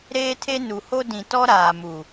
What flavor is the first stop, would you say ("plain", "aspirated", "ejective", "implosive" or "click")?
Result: aspirated